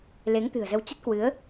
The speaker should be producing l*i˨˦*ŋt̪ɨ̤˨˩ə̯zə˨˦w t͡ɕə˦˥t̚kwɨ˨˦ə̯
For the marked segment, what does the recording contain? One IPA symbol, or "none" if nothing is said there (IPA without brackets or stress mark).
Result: e˨˦